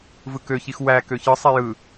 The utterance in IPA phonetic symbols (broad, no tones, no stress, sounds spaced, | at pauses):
v ɯ k ø ç i x w æ k ø ç ɯ sˤ i j ɯ